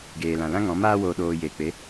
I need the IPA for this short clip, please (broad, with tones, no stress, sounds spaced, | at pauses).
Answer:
ɡ eː˨ l ã˨ l ã˦ ŋ ɔ̃˨˦ m aː˧ w oː˨ ɗ oː˨ j eː˨ k͡p e˨˦